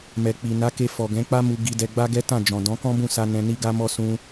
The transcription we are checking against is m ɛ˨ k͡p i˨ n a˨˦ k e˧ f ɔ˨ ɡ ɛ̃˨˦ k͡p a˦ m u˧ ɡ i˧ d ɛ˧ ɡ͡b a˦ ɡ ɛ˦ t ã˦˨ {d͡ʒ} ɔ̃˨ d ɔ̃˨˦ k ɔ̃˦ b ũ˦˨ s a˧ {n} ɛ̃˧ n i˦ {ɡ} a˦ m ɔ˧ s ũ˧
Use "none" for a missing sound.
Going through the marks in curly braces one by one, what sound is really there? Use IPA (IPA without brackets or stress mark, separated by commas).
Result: d͡ʒ, n, ɡ